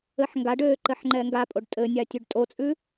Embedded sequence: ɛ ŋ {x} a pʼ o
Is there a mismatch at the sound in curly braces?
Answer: yes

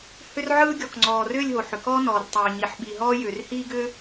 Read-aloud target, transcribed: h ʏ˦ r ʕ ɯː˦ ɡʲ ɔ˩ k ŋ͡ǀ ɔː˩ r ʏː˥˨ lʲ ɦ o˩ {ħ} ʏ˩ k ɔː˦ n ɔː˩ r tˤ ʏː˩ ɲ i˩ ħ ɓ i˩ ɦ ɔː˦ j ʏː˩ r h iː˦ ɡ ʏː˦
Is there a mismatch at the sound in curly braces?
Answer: no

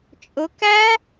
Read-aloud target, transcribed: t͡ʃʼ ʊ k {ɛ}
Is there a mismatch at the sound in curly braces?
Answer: yes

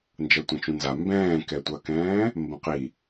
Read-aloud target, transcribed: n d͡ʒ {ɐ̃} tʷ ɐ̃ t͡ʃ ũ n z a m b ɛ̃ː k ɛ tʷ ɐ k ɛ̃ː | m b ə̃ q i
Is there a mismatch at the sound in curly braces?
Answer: yes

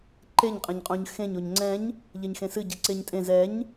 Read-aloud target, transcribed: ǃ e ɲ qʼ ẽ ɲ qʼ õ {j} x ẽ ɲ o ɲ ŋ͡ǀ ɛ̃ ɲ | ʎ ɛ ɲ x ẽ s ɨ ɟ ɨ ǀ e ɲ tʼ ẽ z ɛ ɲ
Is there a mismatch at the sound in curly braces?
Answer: yes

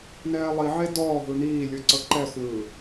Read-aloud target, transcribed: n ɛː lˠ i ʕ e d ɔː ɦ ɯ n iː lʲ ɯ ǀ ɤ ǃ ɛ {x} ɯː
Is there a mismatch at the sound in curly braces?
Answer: no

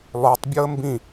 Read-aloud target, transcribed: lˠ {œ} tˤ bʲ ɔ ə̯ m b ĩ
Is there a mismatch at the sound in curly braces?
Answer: no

